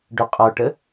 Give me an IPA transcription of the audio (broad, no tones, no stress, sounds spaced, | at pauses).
ɖ ʊ qʼ ɔ ʈ ə